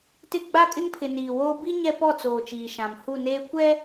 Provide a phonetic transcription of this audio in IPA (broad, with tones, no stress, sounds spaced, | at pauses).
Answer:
t ɪ˦˨ ɡ͡b a˦ kʼ ɪ˦ ŋ pʰ ɪ˨ n iː˨ w oː˦ b i˦ ɲ ɛ˦ p ɔ˦˨ t͡s oː˨ t͡ʃ iː˨ ʃ ã˨ m h u˦˨ n eː˦ kʷ ɛ˦